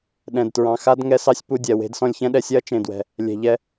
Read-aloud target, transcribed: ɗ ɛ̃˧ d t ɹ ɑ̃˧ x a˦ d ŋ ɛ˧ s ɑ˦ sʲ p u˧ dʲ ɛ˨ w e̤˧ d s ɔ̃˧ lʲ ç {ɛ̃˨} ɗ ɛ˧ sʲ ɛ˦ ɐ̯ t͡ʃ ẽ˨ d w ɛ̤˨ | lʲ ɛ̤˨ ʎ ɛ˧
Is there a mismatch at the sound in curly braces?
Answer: yes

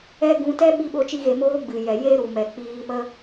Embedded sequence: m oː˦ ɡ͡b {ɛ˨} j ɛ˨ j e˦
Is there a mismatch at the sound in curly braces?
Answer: yes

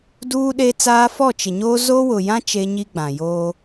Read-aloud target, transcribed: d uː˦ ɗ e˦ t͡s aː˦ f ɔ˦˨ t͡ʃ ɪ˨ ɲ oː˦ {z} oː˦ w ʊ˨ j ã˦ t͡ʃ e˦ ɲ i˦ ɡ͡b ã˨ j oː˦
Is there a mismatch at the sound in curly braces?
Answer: no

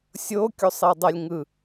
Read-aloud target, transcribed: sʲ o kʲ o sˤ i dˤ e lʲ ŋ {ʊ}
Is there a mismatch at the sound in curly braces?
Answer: yes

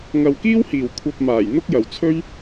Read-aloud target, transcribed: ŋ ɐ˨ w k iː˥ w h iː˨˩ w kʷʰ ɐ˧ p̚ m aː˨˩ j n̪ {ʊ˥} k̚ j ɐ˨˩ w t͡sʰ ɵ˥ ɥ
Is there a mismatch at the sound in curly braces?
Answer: no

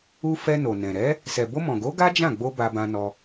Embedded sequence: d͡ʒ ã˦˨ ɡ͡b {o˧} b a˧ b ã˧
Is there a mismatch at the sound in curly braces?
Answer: no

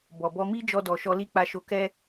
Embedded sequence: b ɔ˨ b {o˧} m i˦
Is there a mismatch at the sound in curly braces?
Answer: yes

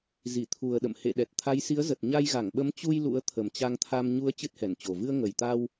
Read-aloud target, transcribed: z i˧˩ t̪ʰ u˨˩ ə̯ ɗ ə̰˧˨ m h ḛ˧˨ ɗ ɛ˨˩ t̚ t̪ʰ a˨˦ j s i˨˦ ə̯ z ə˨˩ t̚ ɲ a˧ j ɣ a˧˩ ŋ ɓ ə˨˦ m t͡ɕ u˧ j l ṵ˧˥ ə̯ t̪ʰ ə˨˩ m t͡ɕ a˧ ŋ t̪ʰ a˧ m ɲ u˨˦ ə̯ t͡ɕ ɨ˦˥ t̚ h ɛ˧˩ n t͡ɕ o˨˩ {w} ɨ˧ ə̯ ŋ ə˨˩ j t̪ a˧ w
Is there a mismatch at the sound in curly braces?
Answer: yes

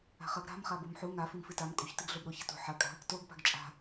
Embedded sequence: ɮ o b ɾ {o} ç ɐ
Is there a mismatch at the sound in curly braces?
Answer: no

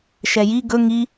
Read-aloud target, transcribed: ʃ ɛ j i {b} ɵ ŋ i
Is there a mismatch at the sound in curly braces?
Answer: yes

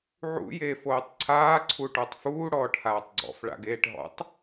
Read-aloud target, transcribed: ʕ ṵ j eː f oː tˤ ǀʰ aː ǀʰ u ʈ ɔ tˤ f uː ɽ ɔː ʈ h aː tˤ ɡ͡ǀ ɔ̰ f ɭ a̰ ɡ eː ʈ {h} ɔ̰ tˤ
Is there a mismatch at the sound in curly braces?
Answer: yes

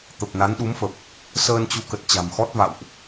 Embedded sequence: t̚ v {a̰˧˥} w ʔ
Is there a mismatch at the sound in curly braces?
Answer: yes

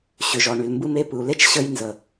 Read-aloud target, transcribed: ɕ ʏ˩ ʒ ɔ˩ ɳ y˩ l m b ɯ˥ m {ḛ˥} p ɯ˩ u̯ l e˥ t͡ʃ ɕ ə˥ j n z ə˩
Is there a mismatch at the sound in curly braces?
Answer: yes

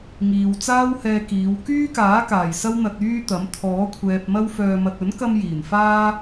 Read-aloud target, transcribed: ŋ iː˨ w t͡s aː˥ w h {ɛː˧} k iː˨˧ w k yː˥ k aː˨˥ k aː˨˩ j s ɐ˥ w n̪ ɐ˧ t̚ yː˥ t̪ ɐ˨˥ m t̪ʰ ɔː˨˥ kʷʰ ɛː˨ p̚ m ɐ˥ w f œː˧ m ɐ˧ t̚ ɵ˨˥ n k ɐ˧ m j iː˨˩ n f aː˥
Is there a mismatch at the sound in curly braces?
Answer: no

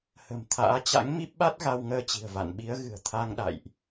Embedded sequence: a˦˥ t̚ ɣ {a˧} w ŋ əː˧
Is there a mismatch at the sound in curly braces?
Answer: no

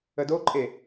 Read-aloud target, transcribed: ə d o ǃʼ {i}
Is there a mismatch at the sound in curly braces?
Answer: yes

